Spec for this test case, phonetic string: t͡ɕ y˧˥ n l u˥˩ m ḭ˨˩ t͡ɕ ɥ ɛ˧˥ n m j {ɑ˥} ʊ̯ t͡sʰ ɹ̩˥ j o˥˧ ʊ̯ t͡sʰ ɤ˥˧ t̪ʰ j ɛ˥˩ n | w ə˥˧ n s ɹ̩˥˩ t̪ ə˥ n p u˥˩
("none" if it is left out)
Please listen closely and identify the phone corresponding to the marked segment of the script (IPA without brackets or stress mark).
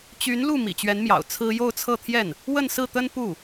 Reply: ɑ̰˨˩